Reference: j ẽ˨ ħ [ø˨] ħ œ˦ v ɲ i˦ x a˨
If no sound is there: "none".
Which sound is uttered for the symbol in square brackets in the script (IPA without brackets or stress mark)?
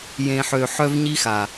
ø˨